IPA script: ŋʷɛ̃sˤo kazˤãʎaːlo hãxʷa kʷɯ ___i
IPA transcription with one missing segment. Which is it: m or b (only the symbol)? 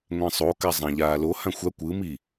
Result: m